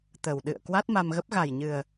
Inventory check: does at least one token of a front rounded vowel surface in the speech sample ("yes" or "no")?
no